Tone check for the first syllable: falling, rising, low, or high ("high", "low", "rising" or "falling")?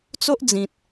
high